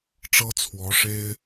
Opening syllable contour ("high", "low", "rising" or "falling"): high